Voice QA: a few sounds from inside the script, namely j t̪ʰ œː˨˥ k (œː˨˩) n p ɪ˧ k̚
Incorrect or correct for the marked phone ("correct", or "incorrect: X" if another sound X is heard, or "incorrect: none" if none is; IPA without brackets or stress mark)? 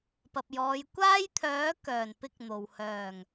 correct